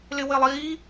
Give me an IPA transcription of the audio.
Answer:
l ɪ w ɪ lˠ iː

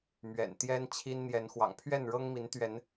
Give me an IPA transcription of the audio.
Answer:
m ɥ ɛ̰˨˩ n t̪ j ɛ˦ n t͡ɕʰ i˦ n n̪ j ɛ˨˦ n x w ɑ̰˨˩ ŋ pʰ ɥ ɛ˥˨ n ɻ ɤ˦ ŋ m i˨˦ n t̪ ɥ ɛ˨˦ n

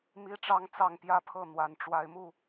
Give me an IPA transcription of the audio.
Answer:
m i˦ ʈ͡ʂ ɑ˦ ŋ t͡s ɑ˥˨ ŋ p j ä˦ pʰ ɤ˥˨ n̪ w a˨˩ n ʈ͡ʂ w a˨˦ ɪ̯ m u˥˨

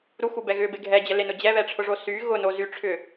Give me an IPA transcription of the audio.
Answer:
ɾ u x u b ɛ ɣ ʏ b e ɡʱ ɛ d͡ʑ ə l e n ʊ d͡ʑ ɛ β ɛ ʈ͡ʂʰ ʊ ʐ o s y ɣ ʊ n o z y ʈ͡ʂʰ ʏ

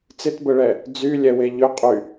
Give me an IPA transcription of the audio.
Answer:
t͡s ɪ t b ə ɭ ɛ | d͡z y lʲ ɛ w e ʎ ʏ qʼ y

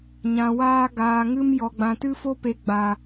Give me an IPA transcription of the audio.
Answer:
ɲ ã˨ w aː˧ ɡ aː˨ ŋ ɨ˧ m j ɔ˨ ɡ͡b ã˨ t ɨ˦ f o˦ p e˨ ɡ͡b a˨

